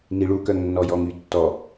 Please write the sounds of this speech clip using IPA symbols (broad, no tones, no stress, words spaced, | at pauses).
niɭu kœŋnːɔjɔŋy tːɔ